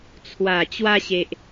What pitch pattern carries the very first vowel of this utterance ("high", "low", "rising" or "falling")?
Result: low